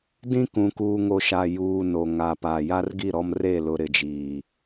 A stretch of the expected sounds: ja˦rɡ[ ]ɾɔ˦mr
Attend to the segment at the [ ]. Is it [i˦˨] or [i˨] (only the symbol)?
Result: i˦˨